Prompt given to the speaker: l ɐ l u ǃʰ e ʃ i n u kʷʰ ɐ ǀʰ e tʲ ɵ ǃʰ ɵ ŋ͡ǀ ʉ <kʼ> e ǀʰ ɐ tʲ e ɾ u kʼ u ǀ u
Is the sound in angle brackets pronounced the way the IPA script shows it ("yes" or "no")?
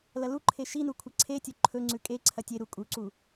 yes